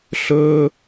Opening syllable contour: high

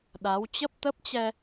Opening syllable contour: rising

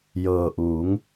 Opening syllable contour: low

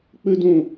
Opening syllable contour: high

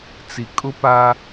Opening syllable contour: low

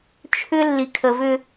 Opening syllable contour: high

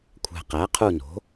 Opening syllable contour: low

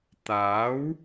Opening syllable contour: rising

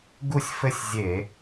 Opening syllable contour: falling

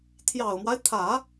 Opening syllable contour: low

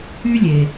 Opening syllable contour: high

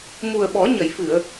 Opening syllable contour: low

